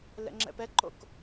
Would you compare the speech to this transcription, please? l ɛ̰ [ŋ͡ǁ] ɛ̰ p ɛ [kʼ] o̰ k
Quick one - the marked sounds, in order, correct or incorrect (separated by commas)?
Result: correct, incorrect